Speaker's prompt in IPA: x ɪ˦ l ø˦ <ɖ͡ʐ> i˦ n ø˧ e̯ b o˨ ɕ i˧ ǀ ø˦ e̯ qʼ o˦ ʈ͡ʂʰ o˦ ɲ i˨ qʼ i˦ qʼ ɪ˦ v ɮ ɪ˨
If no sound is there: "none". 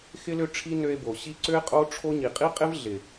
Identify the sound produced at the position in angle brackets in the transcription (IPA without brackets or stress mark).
ʈ͡ʂʰ